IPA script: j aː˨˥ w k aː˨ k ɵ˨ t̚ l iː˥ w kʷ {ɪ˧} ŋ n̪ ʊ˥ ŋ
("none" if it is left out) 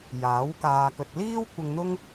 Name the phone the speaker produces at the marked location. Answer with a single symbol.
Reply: ɪ˧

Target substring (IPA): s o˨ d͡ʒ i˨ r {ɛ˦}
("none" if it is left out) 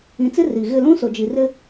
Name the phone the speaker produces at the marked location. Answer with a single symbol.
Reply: ɪ˦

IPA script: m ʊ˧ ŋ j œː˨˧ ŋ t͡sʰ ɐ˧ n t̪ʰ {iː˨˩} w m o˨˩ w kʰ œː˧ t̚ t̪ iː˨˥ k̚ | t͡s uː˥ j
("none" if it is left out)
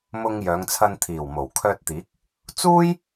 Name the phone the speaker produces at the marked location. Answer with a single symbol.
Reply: iː˨˩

